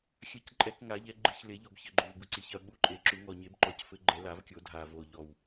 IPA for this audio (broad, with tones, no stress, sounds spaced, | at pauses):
xʲ ɐ˨˩˦ c ǃʼ ɛ˨˩˦ k ŋ a˨˩˦ ʎ ɛ˨˩˦ ɡ͡ǃ ɨ˨˩˦ ç l e˨˩˦ ʎ ɔ˨˩ b ç ɘ˨˩ ɡ͡ǃ o˨˩ v b ɨ˨˩ ǀ i˨˩ ç ɐ˨˩ ɓ u˨˩ ǃʼ e˨˩˦ ǁ u˨˩˦ ŋ ɔ˨˩ ɲ e˨˩˦ b ǃ ɔ˨˩ c f ɘ˨˩˦ ɡ͡ǃ ɛ˨˩˦ l a˨˩˦ v kʲ o˨˩˦ dʱ a˨˩ v o˨˩ ʎ ɔ˨˩ w